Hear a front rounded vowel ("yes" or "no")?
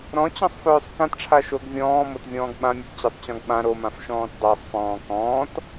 yes